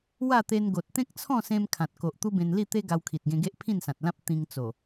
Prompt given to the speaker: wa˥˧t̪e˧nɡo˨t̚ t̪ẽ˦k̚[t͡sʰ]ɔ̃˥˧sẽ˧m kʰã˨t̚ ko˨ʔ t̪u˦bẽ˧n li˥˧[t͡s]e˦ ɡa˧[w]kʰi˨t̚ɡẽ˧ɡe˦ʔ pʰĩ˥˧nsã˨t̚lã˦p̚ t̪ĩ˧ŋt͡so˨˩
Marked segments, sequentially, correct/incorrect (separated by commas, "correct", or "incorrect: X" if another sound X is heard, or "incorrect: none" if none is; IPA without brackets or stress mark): correct, incorrect: t̪, correct